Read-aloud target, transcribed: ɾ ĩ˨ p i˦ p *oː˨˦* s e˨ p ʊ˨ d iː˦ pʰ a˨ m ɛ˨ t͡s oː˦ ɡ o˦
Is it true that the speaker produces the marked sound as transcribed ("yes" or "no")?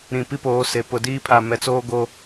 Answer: yes